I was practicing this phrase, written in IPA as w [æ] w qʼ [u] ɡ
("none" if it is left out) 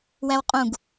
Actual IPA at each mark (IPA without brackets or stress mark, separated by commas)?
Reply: æ, ũ